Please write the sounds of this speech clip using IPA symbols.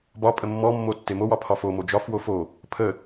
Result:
b ɒ pʼ ə mː ɔ mː o tː e m o w ɒ pʰ ɒ f o m o d͡ʒ ɒ f w o f o | pʰ ə

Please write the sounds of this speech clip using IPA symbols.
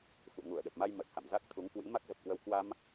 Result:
f ṵ˧˨ ŋ u˧˩ ə̯ ɗ ə˨˩ p̚ m a˧ j m ə˨˩ t̚ h a̰˧˨ m z a˦˥ k̚ t̪ʰ u˨˦ ŋ k w ḭ˧˥ m a˦˥ k̚ z ə˨˩ p̚ k w ə˧ w k w a˧ m

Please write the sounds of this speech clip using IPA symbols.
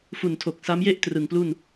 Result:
f u˨˩ n tʰ o˨˩ k̚ s a˦˥ m j e˥˩ ʔ t r ɯ˨˩ ŋ p l u˥˩ n

